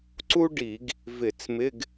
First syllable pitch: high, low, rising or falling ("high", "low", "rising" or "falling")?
high